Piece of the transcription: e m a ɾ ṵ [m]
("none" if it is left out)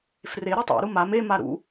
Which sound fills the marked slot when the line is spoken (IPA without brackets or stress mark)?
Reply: none